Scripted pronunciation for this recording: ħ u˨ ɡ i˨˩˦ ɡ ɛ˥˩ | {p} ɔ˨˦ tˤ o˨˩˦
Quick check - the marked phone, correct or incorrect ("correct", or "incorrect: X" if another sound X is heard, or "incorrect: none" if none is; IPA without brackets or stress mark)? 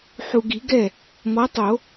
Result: incorrect: m